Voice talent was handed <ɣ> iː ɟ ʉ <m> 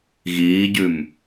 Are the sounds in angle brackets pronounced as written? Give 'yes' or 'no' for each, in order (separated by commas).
yes, yes